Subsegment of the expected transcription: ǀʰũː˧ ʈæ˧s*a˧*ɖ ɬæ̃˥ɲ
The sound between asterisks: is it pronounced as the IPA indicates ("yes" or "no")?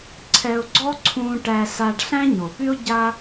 yes